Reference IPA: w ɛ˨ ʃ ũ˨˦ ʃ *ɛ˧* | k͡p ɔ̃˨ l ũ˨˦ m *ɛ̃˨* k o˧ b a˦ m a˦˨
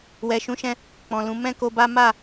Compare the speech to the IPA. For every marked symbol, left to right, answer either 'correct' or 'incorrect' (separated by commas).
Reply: incorrect, incorrect